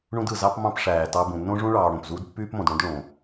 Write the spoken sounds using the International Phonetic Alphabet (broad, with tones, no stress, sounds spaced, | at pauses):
ɳ ũ˦ d ɯ˩ z ɑ˦ p m ɑ̃˦ p ʂ æː˩ t ɑ˨ b ũ˩ nː õ˥ ʐ ũ˥ ɭ ɑː˨ ɽ õ˩ p z uː˦ d pː yː˥ p m õ˩ d ɽ õ˥ d ɭ õ˩